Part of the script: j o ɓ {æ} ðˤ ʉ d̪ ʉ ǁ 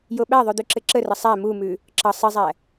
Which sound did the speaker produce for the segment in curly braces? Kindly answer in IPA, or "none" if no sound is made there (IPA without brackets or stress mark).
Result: æ